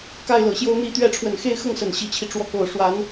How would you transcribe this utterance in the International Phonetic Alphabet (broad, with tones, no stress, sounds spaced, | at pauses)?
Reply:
k a˥˩ ɪ̯ l ɤ˨˩ ɕ j o˥ ʊ̯ n̪ i˧˥ t̪ ɥ ɛ˧˥ ʈ͡ʂʰ w ə˨˩ n x e˥˧ ɪ̯ x ɤ˥˩ ŋ s ə˨˩ n ɕ i˧˥ t͡ɕʰ i˧ ʈ͡ʂ w ɔ˧˥ k o˨˩ ʊ̯ ʂ w a˧˥ n